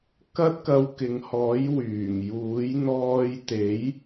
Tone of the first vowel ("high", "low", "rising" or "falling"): high